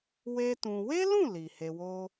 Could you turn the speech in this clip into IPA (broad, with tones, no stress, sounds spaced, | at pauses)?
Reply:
w e˦ t ũ˧ w e˦ l ũ˦˨ l i˨ h e˧ w o˦